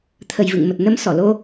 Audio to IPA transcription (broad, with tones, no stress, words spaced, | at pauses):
t̪ʰə˨˩jvɨ̰˧˨ŋmə˨˩t̚ nə˧msɔ˧˩lo˧